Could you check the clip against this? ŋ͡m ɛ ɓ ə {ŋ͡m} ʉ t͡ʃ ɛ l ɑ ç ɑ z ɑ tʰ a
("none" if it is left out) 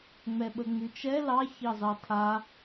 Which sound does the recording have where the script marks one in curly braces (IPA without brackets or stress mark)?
ŋ͡m